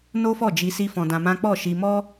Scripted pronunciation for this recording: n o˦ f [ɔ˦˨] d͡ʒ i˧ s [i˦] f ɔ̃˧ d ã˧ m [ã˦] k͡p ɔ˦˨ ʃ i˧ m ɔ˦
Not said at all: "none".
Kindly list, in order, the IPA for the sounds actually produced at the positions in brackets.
ɔ˦˨, i˦, ã˦

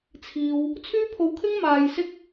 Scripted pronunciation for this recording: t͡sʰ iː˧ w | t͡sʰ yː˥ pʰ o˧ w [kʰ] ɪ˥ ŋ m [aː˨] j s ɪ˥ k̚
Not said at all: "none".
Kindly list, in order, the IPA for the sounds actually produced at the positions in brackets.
kʰ, aː˧

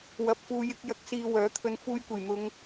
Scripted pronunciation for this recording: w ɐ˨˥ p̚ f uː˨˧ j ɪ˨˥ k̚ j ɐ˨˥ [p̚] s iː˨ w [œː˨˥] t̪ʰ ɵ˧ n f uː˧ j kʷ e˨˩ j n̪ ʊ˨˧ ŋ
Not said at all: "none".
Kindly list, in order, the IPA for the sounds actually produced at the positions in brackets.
k̚, œː˨˥

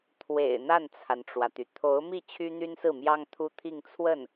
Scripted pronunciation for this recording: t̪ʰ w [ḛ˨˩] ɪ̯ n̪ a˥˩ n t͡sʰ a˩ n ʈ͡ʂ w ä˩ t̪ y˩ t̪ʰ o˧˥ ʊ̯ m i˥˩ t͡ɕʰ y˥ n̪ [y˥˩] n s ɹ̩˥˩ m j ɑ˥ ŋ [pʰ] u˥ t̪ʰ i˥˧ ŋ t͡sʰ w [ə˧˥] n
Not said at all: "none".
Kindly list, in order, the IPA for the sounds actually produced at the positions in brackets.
ḛ˨˩, y˥, t̪ʰ, ə˥˩

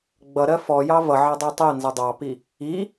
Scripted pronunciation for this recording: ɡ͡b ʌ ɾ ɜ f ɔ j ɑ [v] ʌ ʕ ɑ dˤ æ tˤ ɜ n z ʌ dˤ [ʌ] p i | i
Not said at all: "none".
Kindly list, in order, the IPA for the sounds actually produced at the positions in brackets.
v, ɑ

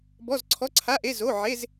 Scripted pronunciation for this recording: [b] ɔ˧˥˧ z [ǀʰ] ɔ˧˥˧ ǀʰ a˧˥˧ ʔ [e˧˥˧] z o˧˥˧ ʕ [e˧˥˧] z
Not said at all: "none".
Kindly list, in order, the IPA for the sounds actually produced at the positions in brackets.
b, ǀʰ, e˧˥˧, e˧˥˧

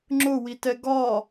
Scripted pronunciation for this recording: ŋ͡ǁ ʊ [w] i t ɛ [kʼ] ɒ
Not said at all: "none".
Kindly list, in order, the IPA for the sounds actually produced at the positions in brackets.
w, ɡ

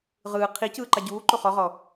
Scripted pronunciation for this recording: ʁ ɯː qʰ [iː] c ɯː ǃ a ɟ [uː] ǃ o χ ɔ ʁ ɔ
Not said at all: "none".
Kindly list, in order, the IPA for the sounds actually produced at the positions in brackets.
i, uː

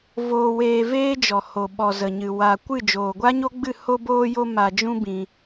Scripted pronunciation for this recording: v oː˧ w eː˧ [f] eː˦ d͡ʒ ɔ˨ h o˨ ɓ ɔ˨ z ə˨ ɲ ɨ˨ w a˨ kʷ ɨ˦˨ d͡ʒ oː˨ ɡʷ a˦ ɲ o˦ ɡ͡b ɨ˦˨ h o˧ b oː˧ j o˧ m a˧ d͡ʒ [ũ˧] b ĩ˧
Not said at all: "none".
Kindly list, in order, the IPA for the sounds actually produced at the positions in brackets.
v, ũ˦

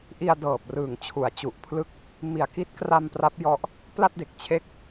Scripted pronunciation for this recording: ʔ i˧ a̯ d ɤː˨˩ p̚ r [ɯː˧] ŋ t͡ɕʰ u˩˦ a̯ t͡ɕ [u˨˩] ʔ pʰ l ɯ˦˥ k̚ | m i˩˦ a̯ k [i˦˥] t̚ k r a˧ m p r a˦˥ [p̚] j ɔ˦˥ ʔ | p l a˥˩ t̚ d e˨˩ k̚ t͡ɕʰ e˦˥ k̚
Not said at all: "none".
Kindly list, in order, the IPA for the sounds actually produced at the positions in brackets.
ɯː˨˩, u˨˩, i˦˥, p̚

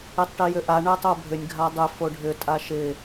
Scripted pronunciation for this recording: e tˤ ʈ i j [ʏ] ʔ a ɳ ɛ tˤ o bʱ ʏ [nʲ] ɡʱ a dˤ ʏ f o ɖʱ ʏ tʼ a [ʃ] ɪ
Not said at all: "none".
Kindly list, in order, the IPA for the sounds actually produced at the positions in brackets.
ʏ, nʲ, ʃ

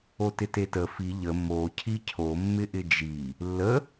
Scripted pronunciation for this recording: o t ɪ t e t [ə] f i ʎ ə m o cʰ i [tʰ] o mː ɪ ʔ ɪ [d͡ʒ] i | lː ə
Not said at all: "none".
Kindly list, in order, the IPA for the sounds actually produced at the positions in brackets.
ə, cʰ, d͡ʒ

